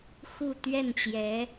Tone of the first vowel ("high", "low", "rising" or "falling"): falling